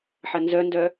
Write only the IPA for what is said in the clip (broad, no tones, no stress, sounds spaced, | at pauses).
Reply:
ħ ɐ n z œ n d œ